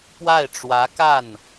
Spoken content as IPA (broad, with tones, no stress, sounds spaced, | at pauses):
p w a˥˩ ɪ̯ ʈ͡ʂ w ä˧˥ k a˥˩ n